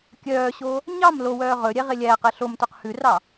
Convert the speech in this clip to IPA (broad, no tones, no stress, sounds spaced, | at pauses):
kʲ œː ɕ oː | ɲ ɑ m l o w œː ʁ ɵ ɾʲ ɛ ʁ e lʲ æː q ɛ ɬ o m t ɵ q h ʉ r ɑ